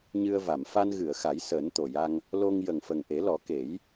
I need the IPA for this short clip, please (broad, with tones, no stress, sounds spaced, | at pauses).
ɲ ɨ˧ ə̯ v a˨˩˨ m f a˧ n ɣ ɨ˨˩˨ ə̯ x a˨˩˦ j s əː˨˩˦ n t̪ o˨˩ j a˧ ŋ | l o˧ ŋ j ə˨˩ ŋ f ə˨˩ ŋ ʔ e˨˩˦ l ɔ˨˩˦ k e˨˩˦ j